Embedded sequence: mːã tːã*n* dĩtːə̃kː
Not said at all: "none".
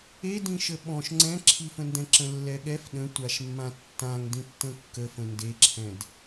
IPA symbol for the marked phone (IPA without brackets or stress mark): ŋ